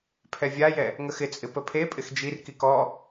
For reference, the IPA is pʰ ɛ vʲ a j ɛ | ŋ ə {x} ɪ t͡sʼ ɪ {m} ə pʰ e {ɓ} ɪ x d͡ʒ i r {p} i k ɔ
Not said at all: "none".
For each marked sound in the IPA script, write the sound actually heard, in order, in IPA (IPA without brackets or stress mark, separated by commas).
x, p, pʼ, k